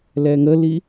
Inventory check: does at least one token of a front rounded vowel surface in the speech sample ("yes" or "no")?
no